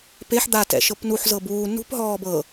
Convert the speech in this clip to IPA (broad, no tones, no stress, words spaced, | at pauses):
peħ d̪atɛ̰ʃɤp nuħzɤ buː nṳpɦɔː bɤ